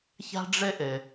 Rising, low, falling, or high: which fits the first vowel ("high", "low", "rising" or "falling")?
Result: high